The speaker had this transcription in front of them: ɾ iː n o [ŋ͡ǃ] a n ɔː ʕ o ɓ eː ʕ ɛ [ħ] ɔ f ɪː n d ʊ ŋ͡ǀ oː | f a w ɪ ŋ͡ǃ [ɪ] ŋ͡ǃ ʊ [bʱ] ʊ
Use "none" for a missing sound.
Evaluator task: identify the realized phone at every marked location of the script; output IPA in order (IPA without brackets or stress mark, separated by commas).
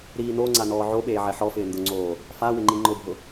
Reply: ŋ͡ǀ, ħ, i, bʱ